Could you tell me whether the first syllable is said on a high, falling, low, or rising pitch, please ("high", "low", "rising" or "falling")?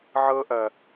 high